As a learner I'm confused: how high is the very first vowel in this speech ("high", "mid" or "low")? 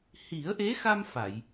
high